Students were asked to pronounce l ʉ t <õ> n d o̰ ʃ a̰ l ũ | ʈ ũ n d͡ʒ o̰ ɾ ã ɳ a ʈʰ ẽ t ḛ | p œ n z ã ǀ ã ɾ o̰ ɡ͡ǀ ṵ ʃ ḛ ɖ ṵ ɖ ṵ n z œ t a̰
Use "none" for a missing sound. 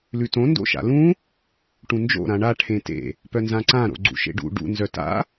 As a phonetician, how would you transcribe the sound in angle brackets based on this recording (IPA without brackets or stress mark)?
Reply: õ